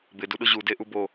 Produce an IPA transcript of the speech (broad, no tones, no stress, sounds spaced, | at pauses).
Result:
b ɪ d u ɗ ʊ ʑ u d e ʔ u b o